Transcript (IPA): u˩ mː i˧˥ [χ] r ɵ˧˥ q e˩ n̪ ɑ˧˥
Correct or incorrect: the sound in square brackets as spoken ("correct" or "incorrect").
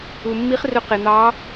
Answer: correct